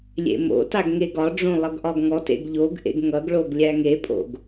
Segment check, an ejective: present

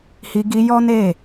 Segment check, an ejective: absent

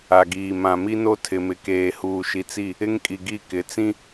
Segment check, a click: absent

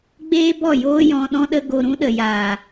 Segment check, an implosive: present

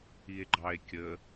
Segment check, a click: present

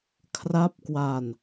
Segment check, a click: absent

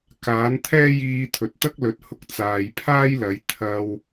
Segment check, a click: absent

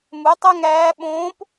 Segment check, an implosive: present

